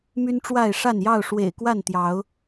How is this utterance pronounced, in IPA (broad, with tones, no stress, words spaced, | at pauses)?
my˦nʈ͡ʂwa˥˨ɪ̯ ʂa˥˨njɑ˥˨ʊ̯ ʂwḛ˨˩ɪ̯kwa˥˨nt̪jɑ˨˦ʊ̯